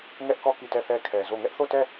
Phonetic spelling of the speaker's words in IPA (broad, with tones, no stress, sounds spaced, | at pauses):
ŋ ɛ˦ ʔ k ɔ˦˨ k i˦˨ t ɛ˦˨ θ ɛ˦ kʰ ɛ˨ z o˦˨ ŋ ɛ˦ ʔ θ o˦˨ t ɛ˦˨